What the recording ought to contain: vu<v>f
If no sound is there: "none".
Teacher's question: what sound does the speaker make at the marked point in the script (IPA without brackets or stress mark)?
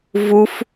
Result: none